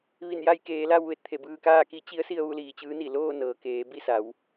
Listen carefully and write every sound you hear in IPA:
ʋi˧˩nja˧jkeː˩˧la˧w ʋe˧˩t̚t̪ʰe˧˩bɯː˧kaː˥˨ ki˧˥t͡ɕi˧˥ə̯si˧ə̯ ʋu˥˨liː˧˩t͡ɕɯː˧˥ni˧˩ loː˥˨nɤː˩ keː˩˧bi˥˨sa˩˧w

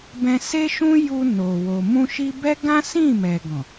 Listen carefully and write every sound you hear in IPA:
bɛ̃˧se˦ʃũ˦ ju˧ no˨ wo˨ mũ˧ʃi˧bɛ˦ ɡã˦sĩ˦˨ mɛ˨ɡɔ̃˨

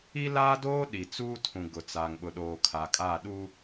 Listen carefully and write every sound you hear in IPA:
i˦laː˦doː˦ ɗi˨t͡suː˦tʰũ˨ ɡʊ˨t͡sa˨ŋ ɓʊ˨ɗoː˨ kʰa˨kʼa˦˨ ɗu˦

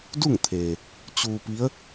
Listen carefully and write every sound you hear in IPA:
du˥˨ŋt̪ʰeː˩ | t͡ɕuː˧pi˧˥ə̯

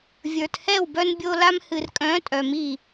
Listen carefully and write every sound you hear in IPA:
vʲə˞˨t hɛ˦˨wbœ˧nbʲo˧la˧m hɨ˨rkʼœ̃˨˦ tʼœ˨mi˦˨

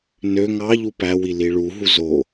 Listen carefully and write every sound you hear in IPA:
nø ŋɑʎu pæwi liɭuɦu zo

